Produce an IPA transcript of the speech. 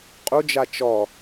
qʼ u d͡ʒ a t͡ʃ ɔ

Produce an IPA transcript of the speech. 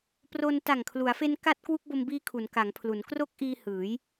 p r o˧ n t a˨˩ ŋ kʰ l u˩˦ a̯ f e˧ n k a˦˥ t̚ k w u˦˥ k̚ b o˧ m b iː˦˥ kʰ u˩˦ n k a˩˦ ŋ pʰ l u˩˦ n k r o˦˥ k̚ ʔ iː˧ h ɯː˩˦ j

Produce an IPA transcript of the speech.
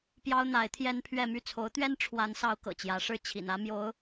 p j ɑ˥ ʊ̯ n̪ a˧˥ ɪ̯ t̪ʰ j ɛ˥ n pʰ ɥ ɛ˥˧ m y˥˩ t͡sʰ o˧˥ ʊ̯ t̪ ɥ ɛ˥ n ʈ͡ʂʰ w a˧˥ n s ɑ˧˥ ʊ̯ k ɤ̰˨˩ t͡ɕ j ä˧˥ ʂ ɻ̩˥˩ t͡ɕʰ ḭ˨˩ n ä˥ m j o˧˥ ʊ̯

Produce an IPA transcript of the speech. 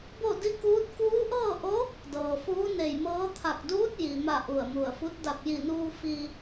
b o˥˨ d i˥˨ k uː˧˥ t̚ k uː˧˥ ʔ ɤː˥˨ ʔ o˧˥ | d ɤː˩ f uː˧˥ n e˧˩ j m ɤː˧˥ t̪ʰ a˧˩ k̚ d uː˧˥ t̚ j i˩ m a˧˩ ʔ u˧˩ ə̯ m u˧˩ ə̯ f u˧˥ t̚ d a˧˩ p̚ j i˧˩ n uː˧ f i˧

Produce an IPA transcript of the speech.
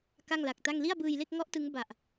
k a˥˩ ŋ l a˨˩ k̚ t a˥˩ ŋ l i˥˩ a̯ b ɯː˧ j l e˥˩ k̚ ŋ ɔ˦˥ ʔ t ɯ˦˥ ŋ b a˨˩ ʔ

